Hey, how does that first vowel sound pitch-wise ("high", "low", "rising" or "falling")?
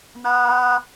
high